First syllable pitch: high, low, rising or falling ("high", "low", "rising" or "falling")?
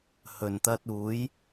low